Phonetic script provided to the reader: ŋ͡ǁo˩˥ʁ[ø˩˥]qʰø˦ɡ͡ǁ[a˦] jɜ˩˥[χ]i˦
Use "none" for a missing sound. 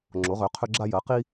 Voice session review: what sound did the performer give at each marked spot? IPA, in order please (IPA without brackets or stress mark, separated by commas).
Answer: ø˩˥, a˦, q